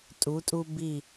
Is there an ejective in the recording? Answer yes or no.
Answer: yes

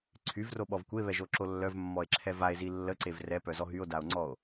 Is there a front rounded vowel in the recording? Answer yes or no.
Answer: yes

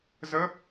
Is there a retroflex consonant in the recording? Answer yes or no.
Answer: no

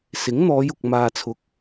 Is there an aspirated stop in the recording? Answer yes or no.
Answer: yes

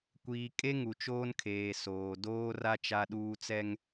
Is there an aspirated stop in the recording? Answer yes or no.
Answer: yes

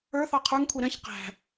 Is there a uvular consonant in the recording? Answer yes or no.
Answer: yes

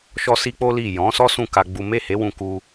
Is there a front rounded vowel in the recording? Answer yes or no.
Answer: no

